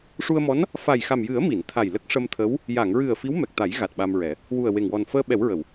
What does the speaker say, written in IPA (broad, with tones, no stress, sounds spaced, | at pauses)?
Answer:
ʂ u˧ ə̯ m ɔ˧˥ n | f a˨˩ j x a˨˩ m j ɨ˨˩˦ ə̯ m i˨˩˨ n t̪ʰ a˨˩ j l ə˦˥ k̚ ʂ ə˧ m t̪ʰ ə˧˥ w | j a˨˩˨ ŋ ɹ ɨ˨˩ ə̯ f i˧˥ w m ɛ˨˩ k̚ t̪ a˨˩˦ j ɣ a˨˩ t̚ ɓ a˧ m ɹ ɛ˨˩˦ | w u˨˩ ə̯ w e˨˩ ŋ w ɔ˨˩ n f əː˧ ɓ ɛ˨˩˦ w ɹ ə˨˩˨ w